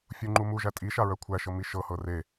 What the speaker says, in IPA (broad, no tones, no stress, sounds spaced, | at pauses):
fʲ u ŋ͡ǃ u m u ʒ æ tʼ i ʃ a ɹ œ kʷʰ æ ʃ ɤ m i ʃ ɤ h ɤ r e